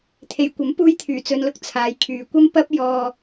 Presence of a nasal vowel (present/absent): absent